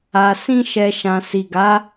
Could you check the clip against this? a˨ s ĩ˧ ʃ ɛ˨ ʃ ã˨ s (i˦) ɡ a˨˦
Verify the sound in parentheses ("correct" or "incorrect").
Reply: incorrect